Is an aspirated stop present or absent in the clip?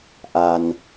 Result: absent